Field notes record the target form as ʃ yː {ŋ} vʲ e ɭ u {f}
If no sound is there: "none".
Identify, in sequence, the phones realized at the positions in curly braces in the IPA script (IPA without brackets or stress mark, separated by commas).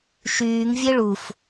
ŋ, f